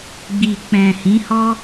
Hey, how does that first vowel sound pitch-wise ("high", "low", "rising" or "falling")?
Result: low